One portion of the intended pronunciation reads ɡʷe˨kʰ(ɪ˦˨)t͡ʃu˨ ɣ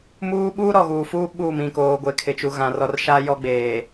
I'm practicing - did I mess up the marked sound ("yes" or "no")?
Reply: yes